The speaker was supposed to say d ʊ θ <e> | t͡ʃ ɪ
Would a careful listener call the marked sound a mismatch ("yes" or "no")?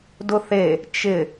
no